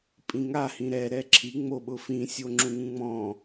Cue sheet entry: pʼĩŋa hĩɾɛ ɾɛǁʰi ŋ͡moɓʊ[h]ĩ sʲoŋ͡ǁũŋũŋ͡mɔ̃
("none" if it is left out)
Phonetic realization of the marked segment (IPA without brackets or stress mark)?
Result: f